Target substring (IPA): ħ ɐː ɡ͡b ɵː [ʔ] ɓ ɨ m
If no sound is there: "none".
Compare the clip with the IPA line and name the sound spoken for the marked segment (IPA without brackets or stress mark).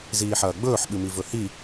ħ